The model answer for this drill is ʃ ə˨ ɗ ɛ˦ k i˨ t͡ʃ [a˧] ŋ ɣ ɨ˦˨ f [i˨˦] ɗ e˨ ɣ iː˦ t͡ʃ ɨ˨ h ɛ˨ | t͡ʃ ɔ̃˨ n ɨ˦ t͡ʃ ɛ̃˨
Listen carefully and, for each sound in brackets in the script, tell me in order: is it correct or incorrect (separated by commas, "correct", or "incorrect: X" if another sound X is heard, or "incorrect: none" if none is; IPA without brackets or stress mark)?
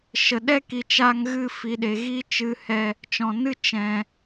correct, incorrect: i˨